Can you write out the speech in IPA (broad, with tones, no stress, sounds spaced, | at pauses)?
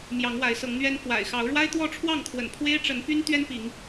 m j ɑ˨˦ ŋ w a˨˦ ɪ̯ s ɤ˨˦ ŋ n̪ ɥ ɛ˦ n f w a̰˨˩ ɪ̯ x ɑ˨˦ ʊ̯ ɻ w a˦ ɪ̯ t̪ w ɔ˥˨ ʈ͡ʂʰ w ɑ˥˨ ŋ kʰ w ə̰˨˩ n pʰ w e˦ ɪ̯ ʈ͡ʂ ə˨˦ n p y˦ n t̪ ɥ ɛ˦ n p i˨˦ ŋ